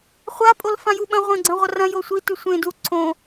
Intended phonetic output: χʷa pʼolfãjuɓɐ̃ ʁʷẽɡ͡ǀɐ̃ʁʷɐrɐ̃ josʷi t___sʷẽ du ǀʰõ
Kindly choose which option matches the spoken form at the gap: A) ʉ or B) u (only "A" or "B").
A